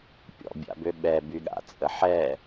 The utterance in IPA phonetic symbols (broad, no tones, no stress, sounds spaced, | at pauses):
pʲ ɔ̰ bʲ a̰ b ø ɓ ɛ b y ɠ a̰ t͡sʼ ə ħ ɛ